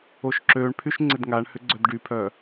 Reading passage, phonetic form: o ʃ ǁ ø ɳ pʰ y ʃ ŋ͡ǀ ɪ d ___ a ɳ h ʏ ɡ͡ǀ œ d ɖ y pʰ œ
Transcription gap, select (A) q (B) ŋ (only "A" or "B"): B